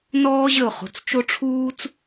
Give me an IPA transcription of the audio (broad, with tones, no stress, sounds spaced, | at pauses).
n ɔː˥ ʑ ə˦˨ ʊ̯ χ o̤˦˨ t͡s t͡ʃ o˥ ʈ͡ʂʰ uː˥ t͡s